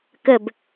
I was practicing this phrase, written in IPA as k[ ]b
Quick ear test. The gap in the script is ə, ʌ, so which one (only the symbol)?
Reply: ə